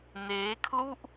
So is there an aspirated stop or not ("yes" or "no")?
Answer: yes